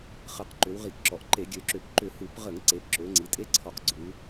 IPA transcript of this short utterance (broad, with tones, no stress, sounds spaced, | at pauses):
χ ə˧˩˧ q ǃ ʏ˩˧ w ʁ i˧˩˧ k ǁ ɔ˩˧ ʔ ǃ e˧˩˧ ɡʲ ø˩˧ ǁ ʏ˧˩˧ p ǃ ʏ˧˩˧ h u˧˩˧ p ʁ ə˧˩˧ ŋ ǀ e˩˧ p ǁ ø˩˧ ŋ͡ǀ i˩˧ tʼ e˧˥ ǀʰ ɔ˧˩˧ q ɡ͡ǀ u˩˧